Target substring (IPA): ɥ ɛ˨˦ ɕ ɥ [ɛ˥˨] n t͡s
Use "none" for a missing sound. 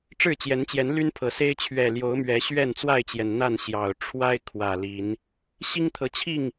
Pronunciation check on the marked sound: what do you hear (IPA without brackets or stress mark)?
ɛ˥˨